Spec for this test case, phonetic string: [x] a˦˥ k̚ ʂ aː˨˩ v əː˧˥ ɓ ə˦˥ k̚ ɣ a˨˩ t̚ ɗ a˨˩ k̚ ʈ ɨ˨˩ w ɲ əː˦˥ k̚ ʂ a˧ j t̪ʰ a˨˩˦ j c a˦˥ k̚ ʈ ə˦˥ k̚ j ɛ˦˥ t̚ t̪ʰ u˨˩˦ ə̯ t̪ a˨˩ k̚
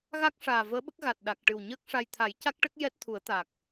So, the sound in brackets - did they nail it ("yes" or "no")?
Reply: no